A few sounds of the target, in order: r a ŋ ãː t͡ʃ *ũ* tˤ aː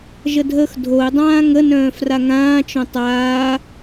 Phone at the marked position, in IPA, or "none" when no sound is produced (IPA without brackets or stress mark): õ